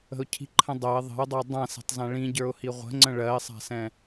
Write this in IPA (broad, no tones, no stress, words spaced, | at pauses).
ə̤ʊ̯cʰi̤ǃʰə̃dˤɜɪ̯ ðˤə̤ʊ̯dˤəʊ̯ dˤãsɛ̤tˤzã ɭĩɟə˞ʊ̯hi ʁʷə̤ŋ͡ǀə̃ ɭɜɪ̯sˤa̤sɛ̃